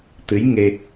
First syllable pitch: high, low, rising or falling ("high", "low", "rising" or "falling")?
rising